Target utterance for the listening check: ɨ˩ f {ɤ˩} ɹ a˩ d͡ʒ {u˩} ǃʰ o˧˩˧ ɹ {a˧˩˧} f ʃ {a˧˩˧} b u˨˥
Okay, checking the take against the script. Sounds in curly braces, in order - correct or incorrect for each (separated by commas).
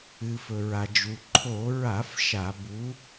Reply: incorrect, correct, correct, correct